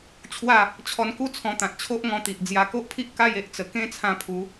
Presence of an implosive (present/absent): absent